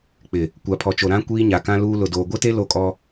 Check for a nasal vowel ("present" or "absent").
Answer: present